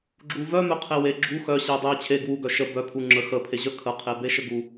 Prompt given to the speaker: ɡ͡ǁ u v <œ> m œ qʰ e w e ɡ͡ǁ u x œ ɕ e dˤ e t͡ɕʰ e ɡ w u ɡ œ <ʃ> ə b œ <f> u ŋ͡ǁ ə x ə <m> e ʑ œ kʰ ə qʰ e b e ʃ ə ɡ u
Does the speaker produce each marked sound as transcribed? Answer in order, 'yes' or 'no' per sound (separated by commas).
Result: yes, yes, no, no